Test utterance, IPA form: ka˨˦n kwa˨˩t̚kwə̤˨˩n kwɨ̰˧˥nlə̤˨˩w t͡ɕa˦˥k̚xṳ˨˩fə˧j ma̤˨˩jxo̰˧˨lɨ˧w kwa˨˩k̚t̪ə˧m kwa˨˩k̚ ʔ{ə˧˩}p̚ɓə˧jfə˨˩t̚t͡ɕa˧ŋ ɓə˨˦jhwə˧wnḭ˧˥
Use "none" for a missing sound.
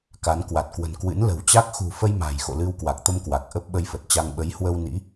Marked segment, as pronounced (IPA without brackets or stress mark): ə˦˥